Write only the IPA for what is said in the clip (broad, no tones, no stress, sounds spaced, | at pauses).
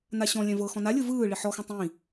n a ɕ ɔ̃ lʲ ɛ̃ v ɤ x ɔ̃ n a lʲ ɯ v ɯː ɭ i ħ ɔ x ɛ̃ tˤ ĩ